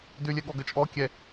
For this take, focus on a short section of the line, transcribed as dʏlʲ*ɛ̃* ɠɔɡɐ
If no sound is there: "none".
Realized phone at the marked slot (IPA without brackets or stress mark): ɛ